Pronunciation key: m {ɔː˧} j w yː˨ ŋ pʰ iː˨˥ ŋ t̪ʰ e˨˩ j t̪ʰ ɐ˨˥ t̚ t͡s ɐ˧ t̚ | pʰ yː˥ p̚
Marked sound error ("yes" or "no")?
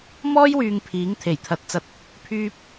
yes